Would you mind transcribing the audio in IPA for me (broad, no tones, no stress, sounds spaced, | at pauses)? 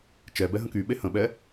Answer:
t͡ʃ ɛ b ɛ ɦ ə̃ k y ɓ e h ə̃ ɓ ɛ